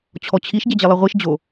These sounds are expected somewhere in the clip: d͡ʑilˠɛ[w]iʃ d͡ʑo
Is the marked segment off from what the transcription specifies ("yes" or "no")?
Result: yes